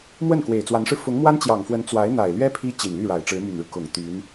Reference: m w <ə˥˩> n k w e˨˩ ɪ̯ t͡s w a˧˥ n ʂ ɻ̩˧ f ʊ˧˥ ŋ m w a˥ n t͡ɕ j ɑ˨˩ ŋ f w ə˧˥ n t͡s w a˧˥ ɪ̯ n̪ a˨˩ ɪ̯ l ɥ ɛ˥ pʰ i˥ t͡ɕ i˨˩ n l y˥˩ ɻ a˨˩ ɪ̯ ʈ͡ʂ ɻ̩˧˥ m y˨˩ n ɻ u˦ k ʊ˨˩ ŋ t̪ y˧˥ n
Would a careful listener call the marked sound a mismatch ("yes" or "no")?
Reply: no